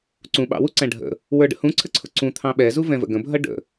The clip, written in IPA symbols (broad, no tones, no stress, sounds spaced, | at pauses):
ǀ ũ ɓ ɑ̰ w u ǀ æ̃ ɖʱ ə̰ | w ə˞ ɖ ə̰ h ũ ǀʰ ə ǀʰ ʊ ǀ ũ t̪ʰ ɑ̃ ɓ ɛ z u v ɛ̃ v ə̰ ɡ ə̃ bʱ ʌ ɖ ə̰